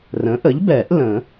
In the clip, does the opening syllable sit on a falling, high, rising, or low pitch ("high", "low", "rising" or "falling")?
rising